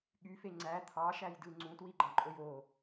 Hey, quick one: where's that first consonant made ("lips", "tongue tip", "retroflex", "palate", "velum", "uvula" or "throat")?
velum